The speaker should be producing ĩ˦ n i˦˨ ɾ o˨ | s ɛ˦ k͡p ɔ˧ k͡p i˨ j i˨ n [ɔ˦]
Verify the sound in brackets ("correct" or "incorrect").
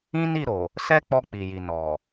incorrect